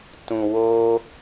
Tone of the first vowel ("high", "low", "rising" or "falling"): low